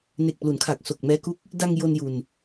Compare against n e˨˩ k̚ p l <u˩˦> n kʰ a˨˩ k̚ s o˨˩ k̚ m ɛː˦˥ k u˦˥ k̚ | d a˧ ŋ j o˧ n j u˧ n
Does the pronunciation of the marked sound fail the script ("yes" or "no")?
no